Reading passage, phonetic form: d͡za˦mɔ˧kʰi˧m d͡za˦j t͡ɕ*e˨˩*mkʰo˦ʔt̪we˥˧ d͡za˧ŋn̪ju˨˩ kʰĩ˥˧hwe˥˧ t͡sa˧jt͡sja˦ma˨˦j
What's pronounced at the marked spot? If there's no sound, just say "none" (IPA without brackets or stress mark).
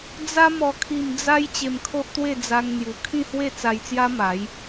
e˧